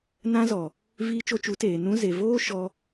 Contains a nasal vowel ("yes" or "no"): yes